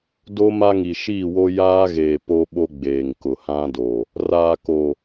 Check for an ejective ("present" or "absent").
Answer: absent